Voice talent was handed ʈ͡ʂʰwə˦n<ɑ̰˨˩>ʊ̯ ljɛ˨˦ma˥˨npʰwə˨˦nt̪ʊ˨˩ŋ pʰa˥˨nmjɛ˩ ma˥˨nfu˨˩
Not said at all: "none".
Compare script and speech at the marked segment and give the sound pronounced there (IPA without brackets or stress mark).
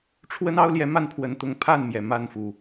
ɑ˦